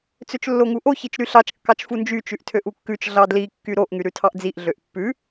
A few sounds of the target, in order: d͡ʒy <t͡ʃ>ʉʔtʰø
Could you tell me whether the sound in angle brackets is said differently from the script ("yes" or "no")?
no